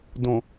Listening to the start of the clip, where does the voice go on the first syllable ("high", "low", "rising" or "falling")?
low